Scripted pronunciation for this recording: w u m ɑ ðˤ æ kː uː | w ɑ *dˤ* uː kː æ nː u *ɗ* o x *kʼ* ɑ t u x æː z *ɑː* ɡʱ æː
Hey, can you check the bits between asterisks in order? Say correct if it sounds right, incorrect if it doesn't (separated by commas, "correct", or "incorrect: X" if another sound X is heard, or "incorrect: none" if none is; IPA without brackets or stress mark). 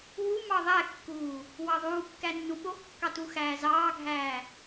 incorrect: ðˤ, incorrect: ɓ, incorrect: kː, correct